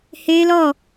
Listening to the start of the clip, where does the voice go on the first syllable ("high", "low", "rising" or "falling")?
high